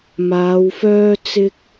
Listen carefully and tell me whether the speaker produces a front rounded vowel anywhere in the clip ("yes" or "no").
yes